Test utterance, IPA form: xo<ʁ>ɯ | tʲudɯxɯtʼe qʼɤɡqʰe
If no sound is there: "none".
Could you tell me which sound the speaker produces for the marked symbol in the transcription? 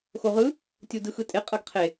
ʁ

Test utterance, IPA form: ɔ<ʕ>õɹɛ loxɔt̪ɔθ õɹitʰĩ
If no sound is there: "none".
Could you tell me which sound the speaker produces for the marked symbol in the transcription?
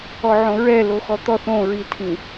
ʕ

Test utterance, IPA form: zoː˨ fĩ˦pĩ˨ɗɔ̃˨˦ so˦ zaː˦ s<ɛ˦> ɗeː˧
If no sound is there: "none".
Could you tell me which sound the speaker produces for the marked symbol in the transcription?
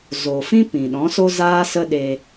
ə˦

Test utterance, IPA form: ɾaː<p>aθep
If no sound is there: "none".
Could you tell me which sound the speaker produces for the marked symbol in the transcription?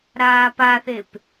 p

